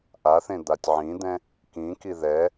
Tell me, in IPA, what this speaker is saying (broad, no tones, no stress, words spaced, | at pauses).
ʔaθẽ d̪atʲʕĩd̪ɛ̃ | kĩki ðɛ